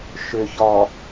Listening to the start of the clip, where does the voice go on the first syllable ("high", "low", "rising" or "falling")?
low